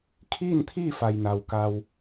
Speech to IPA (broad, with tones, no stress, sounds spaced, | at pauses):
kʰ iː˥˨ n t̪ʰ iː˥˨ f a˩ j n a˩ w k a˧ w